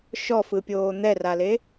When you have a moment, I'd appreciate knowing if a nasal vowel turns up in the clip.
no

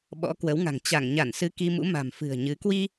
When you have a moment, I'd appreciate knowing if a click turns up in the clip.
no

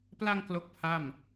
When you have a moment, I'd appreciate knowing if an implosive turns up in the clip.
no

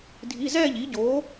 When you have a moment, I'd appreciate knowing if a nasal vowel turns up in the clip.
no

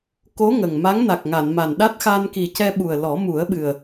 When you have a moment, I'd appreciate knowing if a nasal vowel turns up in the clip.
no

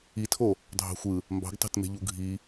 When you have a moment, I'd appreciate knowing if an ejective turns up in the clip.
no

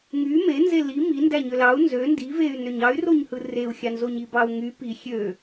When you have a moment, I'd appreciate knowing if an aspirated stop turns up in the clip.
no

